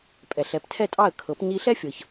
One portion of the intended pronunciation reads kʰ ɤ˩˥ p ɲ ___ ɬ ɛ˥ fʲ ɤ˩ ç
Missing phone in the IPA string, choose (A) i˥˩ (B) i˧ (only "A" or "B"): B